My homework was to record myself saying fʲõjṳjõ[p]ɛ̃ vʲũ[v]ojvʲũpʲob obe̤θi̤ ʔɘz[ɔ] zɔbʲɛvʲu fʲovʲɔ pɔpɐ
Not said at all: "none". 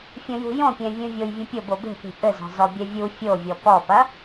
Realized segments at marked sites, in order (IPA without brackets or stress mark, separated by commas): pʲ, vʲ, ɔ̤